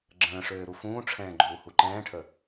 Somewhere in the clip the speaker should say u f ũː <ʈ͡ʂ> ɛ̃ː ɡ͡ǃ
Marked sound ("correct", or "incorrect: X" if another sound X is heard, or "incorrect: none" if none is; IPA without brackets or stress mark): incorrect: ʈ͡ʂʰ